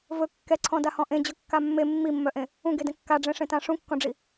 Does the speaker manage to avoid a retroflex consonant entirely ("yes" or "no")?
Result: no